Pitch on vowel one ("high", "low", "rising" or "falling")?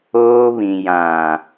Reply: high